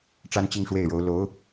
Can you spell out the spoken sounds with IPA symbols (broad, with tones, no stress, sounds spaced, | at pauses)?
ʈ͡ʂ a˥ n t͡ɕ i˥˧ ŋ ʂ w e˥˩ ɪ̯ ɻ o˧˥ ʊ̯ l o˧˥ ʊ̯